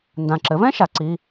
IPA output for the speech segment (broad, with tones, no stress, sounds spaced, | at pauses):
n d ã˨˩ ǁ ɘ˩˥ v ɛ̃˥ ʃ a˩˥ ǀ i˧˥˧